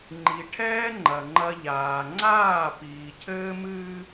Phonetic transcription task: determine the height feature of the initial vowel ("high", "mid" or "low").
high